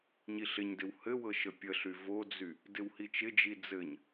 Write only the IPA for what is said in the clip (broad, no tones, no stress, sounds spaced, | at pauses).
ɲ i ɬ ɪ ɲ d ɪ w h ɘ w ɤ ʃ ə pʲ ə ɬ y v o d͡z y | d ɪ w h i t͡ʃ ɪ d͡ʒ i d͡z ɘ ɲ